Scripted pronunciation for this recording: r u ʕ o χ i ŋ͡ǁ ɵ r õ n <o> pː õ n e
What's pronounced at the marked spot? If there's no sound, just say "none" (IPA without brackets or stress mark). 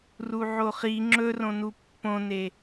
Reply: u